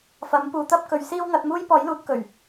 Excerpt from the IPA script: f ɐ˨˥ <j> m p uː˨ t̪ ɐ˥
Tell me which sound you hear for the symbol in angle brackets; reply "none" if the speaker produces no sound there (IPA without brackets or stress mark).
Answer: none